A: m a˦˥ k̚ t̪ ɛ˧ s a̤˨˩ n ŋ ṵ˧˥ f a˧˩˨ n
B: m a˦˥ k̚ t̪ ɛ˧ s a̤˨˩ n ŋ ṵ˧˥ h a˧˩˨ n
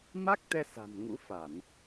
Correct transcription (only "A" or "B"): A